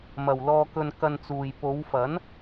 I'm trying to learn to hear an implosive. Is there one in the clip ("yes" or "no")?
no